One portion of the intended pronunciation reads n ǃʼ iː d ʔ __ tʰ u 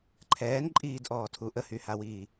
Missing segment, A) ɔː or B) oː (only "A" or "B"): A